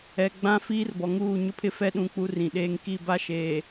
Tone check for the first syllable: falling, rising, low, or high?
low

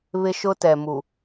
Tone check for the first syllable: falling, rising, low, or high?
high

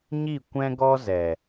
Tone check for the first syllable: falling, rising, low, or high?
falling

